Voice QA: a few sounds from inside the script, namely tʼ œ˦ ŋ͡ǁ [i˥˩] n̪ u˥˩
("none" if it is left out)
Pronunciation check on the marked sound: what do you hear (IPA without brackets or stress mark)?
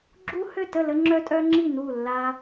i˥˩